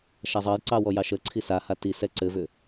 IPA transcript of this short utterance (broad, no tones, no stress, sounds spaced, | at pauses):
ʃ a zˤ ɑ j ǀ ɑ w ɔ j ɑ ʃ ə ǀʰ i s a h a t i s ɛ ǀ ɘ v ʏ